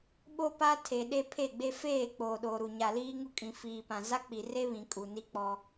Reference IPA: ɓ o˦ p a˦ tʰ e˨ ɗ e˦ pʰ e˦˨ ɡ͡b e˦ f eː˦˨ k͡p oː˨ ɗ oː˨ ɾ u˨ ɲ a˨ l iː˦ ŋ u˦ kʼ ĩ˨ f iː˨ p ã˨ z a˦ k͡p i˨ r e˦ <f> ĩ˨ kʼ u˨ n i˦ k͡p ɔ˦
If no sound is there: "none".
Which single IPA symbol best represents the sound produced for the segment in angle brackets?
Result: β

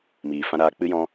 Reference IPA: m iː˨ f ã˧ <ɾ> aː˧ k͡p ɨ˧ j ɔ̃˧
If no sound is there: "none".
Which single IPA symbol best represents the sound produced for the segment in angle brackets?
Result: ɾ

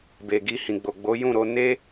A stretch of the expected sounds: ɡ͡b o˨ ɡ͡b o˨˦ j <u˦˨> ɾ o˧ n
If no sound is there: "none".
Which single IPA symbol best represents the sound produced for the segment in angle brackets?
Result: ũ˦˨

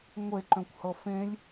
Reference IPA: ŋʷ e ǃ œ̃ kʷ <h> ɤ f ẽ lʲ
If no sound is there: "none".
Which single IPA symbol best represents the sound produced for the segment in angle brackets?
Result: h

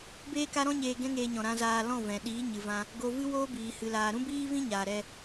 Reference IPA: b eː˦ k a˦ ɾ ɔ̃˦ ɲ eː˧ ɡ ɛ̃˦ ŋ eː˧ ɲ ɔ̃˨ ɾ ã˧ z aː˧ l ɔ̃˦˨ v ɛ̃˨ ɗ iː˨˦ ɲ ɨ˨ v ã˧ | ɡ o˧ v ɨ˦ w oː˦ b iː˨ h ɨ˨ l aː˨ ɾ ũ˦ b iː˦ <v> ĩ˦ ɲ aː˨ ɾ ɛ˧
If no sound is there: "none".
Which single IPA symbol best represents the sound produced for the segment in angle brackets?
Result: v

